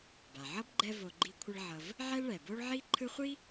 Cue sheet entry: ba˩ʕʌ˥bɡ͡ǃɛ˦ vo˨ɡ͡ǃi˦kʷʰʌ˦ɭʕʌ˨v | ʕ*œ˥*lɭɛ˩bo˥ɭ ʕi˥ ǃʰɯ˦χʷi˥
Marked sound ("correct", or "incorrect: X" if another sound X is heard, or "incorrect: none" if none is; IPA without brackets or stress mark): incorrect: ɛ˥